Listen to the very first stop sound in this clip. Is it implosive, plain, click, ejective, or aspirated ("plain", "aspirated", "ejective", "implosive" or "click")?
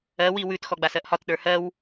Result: plain